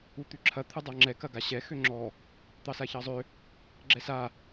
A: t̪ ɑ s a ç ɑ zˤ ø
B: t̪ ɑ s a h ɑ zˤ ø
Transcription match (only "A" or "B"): A